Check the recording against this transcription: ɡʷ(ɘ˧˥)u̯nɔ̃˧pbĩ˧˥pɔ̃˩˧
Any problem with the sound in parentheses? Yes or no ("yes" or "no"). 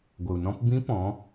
yes